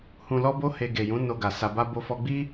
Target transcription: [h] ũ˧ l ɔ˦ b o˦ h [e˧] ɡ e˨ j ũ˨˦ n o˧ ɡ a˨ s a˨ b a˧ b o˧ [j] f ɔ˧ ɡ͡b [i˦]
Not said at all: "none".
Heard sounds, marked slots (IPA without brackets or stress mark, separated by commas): h, e˧, none, i˦